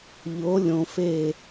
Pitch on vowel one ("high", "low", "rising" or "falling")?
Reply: rising